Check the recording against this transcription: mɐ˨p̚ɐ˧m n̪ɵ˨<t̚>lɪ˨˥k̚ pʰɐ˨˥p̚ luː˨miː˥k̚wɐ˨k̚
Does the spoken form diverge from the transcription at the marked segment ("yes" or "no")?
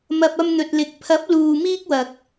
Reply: no